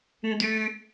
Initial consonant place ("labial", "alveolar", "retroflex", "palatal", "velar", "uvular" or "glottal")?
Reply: alveolar